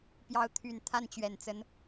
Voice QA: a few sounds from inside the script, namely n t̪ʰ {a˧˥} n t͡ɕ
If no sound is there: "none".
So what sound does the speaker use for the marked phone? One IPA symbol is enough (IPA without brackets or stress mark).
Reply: a˥˩